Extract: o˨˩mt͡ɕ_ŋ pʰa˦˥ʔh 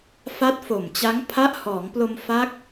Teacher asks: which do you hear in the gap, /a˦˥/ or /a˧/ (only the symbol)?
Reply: a˦˥